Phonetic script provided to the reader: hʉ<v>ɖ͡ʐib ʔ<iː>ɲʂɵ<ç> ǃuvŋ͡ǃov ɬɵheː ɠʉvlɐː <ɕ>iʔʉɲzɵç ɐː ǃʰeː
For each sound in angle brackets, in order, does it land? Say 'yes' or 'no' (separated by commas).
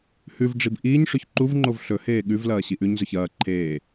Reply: yes, yes, yes, yes